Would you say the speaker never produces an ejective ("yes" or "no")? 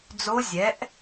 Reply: yes